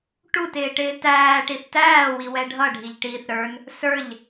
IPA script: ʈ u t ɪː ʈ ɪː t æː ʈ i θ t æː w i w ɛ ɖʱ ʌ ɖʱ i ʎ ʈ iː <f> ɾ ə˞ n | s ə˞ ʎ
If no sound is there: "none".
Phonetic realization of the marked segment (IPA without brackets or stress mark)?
θ